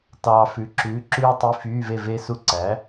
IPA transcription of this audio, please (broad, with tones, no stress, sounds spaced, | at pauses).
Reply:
t ɑː˨ f ʉ˩˥ ǁ ʉː˩˥ ǁ ʉː˥ tˤ i˧˥˧ f yː˧˥˧ v e˥˨ v e˥ s u˥˨ ǀ æ˩˥